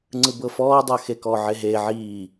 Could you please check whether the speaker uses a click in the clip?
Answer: yes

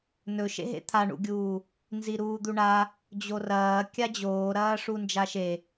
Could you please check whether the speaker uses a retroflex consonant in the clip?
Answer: yes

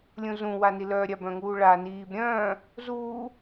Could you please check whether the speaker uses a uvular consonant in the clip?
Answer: no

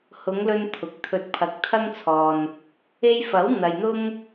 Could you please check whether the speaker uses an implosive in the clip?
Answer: no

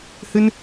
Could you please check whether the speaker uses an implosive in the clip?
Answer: no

